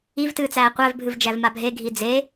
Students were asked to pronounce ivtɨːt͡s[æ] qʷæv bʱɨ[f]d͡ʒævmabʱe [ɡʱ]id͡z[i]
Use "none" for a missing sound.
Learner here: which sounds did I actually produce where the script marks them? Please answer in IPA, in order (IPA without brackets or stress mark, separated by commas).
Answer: æː, v, ɡʱ, e